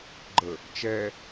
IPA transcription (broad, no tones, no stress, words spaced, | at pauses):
ɡ͡ǃə | t͡ʃɛ